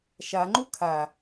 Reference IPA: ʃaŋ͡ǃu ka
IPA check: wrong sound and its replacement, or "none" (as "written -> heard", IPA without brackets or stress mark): k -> kʰ